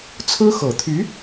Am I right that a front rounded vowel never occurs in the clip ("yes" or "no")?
no